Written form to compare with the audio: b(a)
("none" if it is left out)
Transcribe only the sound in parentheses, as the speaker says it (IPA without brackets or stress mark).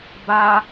a